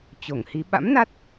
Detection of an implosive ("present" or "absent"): present